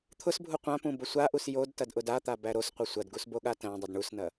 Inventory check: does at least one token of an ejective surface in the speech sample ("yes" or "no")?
no